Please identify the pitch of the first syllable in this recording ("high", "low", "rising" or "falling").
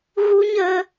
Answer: high